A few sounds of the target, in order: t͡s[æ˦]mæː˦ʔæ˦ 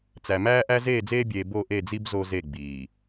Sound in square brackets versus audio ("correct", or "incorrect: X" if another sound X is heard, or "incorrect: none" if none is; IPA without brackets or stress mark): incorrect: æ˨